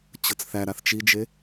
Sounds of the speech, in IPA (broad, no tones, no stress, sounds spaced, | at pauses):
t͡ɕ ɤ t͡s θ æ ɾ a θ t͡ʃ i d͡ʒ e